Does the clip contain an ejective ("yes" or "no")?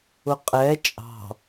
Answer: yes